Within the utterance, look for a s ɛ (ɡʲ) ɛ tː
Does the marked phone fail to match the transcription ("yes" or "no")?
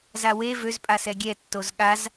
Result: no